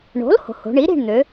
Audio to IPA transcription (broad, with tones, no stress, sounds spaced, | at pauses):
ɳ o̤˩˥ l h o̤˩˧ h o̤˩˧ ɳ i˩˥ ɾ i̤˦˨ ɳ n̪ ø˩˧